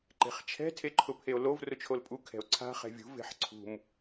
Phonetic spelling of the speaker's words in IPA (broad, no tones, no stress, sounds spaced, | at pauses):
ǃ e̤ χ t͡ʃʰ ɛ̤ tʰ e ǃʰ ʊ pʰ e o̯ l o v r ʊ t͡ʃʰ o l pʼ u kʰ ɛ̤ o̯ ǀʰ a̤ χ ɛ̤ vʲ ṳ v e̤ ħ ǀʰ ṳ m